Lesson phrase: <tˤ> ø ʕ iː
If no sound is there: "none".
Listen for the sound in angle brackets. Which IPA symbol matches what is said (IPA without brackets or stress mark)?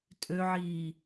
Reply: tʼ